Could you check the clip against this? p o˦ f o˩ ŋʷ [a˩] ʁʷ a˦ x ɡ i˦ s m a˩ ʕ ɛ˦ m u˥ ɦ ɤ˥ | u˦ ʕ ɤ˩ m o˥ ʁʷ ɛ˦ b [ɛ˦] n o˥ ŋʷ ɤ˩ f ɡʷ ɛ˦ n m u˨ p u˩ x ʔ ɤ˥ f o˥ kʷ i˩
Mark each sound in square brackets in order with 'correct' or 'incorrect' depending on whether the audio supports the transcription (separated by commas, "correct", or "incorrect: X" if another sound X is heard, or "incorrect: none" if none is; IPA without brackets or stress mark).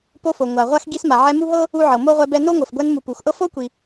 correct, correct